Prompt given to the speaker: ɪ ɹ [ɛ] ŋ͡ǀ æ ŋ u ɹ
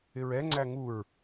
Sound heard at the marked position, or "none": ɛ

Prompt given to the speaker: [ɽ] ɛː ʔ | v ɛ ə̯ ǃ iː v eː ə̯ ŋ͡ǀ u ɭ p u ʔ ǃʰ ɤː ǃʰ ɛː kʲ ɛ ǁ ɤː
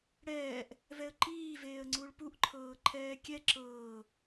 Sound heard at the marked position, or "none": ɽ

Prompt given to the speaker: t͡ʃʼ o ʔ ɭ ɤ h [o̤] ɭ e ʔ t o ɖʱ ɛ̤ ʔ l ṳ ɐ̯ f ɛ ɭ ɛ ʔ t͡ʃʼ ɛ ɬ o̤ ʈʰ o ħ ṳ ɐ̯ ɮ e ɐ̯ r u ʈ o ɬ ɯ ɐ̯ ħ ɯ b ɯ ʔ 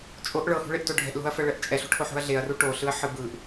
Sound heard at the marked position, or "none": ṳ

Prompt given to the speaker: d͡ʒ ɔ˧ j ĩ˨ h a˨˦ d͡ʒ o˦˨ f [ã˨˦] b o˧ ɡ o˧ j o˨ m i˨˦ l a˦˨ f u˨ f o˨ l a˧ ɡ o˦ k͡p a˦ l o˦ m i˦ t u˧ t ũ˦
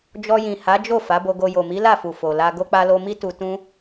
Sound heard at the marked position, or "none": a˨˦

